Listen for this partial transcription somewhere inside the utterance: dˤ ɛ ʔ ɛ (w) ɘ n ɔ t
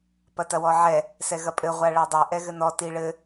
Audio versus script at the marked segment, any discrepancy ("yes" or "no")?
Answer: yes